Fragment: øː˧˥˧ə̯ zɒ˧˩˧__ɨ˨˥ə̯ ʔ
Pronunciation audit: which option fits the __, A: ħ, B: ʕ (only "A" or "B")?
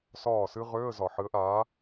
A